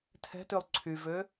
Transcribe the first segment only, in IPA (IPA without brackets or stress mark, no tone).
tʰ